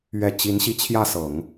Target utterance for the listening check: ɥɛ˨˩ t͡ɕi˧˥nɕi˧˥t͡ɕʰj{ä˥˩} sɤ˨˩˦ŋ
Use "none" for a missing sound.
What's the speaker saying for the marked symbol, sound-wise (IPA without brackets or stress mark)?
ä˥˩